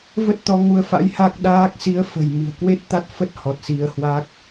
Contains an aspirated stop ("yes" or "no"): no